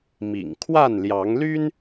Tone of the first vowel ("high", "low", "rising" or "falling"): low